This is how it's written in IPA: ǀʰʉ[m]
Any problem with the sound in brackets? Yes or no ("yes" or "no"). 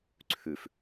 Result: yes